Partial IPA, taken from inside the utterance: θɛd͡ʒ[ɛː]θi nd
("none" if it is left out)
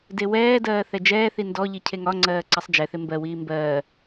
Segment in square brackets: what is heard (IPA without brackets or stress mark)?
ɛː